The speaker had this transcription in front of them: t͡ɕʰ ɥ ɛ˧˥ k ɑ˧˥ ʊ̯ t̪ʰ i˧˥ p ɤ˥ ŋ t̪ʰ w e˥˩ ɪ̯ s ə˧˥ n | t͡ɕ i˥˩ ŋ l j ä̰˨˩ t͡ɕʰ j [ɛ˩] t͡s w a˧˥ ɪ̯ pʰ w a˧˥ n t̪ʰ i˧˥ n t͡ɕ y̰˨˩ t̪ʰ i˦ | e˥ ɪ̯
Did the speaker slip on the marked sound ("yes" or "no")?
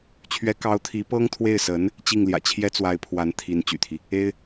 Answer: yes